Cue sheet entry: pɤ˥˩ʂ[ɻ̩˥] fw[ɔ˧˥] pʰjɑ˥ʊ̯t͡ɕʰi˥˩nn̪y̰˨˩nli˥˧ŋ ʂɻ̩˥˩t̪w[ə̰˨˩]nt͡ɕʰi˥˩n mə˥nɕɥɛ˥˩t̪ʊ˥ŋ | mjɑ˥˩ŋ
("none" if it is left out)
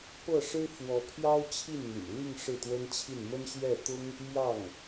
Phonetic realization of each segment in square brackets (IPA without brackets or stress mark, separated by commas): ɻ̩˥, ɔ˧˥, ə˥